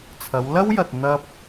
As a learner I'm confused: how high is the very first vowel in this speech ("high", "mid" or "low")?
low